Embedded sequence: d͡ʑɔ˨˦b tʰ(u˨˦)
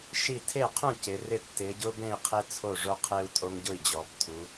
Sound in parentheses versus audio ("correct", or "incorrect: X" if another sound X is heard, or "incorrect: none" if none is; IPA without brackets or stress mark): correct